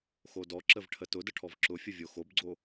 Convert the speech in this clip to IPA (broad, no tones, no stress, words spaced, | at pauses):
xodɔǁəv ʈʰətʊdə ʈʰɔvǁʊfʲə vʲoxobɡ͡ǀo